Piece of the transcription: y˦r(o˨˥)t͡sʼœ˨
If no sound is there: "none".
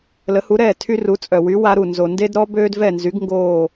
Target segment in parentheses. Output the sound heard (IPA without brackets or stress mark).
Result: u˨˥